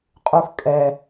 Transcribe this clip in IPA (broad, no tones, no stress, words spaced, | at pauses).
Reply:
qʼux kʼɛ